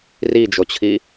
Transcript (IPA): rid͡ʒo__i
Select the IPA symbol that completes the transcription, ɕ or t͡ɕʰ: t͡ɕʰ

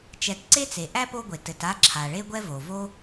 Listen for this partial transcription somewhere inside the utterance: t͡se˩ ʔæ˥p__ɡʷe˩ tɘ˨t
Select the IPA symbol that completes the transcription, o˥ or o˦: o˦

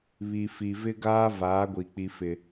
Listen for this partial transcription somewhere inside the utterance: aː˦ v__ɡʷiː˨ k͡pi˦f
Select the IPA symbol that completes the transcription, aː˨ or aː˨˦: aː˨˦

